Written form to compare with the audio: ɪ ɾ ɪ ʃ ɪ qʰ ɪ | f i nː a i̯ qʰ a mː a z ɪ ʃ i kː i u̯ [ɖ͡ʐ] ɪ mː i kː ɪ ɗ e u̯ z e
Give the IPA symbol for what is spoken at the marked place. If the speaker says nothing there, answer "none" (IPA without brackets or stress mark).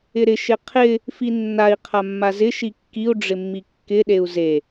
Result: ɖ͡ʐ